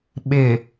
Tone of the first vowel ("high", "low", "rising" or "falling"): low